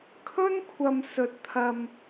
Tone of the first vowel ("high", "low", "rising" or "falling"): high